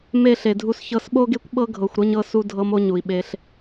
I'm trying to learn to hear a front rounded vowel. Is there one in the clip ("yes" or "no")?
no